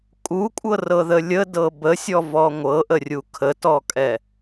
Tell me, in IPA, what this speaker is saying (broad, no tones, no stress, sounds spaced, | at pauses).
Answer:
kʼ u kʷʼ ɤ r ɤ ð ə lʲ ə d ɤ b ə sʲ ɔ v ɔ ŋʷ ɤ ʔ ə rʲ u kʰ ə t ɔ kʼ ɛ